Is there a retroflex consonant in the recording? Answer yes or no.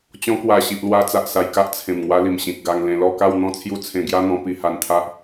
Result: no